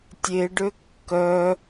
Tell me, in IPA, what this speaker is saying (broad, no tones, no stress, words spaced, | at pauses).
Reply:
tʲeɖø kːœ